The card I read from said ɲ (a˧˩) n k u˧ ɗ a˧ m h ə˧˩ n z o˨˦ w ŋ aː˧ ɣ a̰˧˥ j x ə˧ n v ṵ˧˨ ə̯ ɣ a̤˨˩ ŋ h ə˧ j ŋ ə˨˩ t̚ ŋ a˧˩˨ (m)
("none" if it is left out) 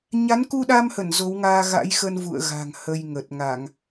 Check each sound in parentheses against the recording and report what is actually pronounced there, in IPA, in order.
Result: a˨˦, ŋ

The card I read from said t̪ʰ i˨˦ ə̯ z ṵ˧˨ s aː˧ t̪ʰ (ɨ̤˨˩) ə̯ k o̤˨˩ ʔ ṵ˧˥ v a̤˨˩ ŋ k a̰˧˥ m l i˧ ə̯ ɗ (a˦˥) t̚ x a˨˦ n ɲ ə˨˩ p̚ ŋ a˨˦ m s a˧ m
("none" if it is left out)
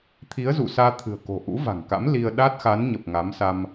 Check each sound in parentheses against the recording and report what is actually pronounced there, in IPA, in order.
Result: ɨ̤˨˩, a˦˥

